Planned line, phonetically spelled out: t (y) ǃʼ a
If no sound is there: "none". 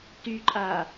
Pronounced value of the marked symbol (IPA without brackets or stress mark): y